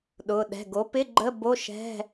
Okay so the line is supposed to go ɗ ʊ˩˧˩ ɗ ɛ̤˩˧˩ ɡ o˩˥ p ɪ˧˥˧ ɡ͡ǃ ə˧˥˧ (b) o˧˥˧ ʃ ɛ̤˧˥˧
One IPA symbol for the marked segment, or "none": b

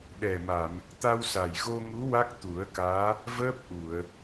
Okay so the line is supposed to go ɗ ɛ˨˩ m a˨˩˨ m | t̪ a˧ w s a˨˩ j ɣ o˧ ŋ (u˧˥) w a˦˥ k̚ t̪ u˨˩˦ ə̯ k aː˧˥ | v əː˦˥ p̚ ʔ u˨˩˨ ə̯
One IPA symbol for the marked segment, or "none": u˧˥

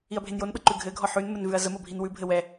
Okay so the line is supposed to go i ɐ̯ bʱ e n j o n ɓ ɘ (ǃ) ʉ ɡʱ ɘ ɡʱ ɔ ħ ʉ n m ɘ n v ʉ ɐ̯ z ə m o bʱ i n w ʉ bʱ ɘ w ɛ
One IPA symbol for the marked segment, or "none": ǃ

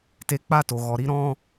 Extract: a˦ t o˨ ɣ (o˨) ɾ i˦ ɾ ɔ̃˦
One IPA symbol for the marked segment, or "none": ɔ˨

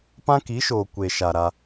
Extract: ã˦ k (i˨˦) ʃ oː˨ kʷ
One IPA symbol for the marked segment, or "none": i˨˦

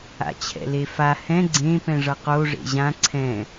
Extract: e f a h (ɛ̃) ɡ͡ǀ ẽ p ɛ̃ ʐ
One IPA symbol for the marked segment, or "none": ɛ̃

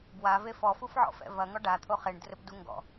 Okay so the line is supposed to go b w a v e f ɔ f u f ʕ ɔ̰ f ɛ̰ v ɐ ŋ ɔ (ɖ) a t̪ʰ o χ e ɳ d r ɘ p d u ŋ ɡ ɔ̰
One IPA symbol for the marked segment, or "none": ɖ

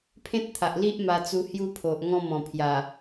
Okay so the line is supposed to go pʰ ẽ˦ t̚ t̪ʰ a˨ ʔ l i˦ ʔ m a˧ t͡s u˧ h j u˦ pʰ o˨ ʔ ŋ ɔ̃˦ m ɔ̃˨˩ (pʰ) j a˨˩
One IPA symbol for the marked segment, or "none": pʰ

